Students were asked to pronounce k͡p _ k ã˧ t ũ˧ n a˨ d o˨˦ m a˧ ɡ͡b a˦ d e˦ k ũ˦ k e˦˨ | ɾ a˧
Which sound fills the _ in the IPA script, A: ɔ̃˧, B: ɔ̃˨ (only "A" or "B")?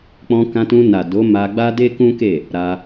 A